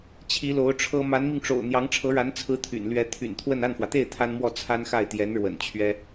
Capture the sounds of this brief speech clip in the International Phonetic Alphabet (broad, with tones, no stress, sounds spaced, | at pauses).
t͡ɕʰ i˧˥ l o˧˥ ʊ̯ ʈ͡ʂʰ ɤ˥ m a˧˥ n m i˧ ŋ ʈ͡ʂ o̰˨˩ ʊ̯ n̪ j ɑ˧˥ ŋ ʈ͡ʂʰ ɤ˧˥ ɻ a˧˥ n t͡sʰ ɹ̩˥ t̪ʰ y̰˨˩ n l ɥ ɛ˧˥ t̪ʰ y̰˨˩ n t̪ʰ w ə˥˧ n a˥˩ n f w ä˩ t̪ e˥˩ ɪ̯ t̪ʰ a˥ n m w ɔ˥˩ t͡sʰ a˥ n x a˥˩ ɪ̯ t̪ j ɛ˧˥ n ɻ w ə̰˨˩ n t͡ɕʰ ɥ ɛ˥